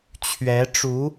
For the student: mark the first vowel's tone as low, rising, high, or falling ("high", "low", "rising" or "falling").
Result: rising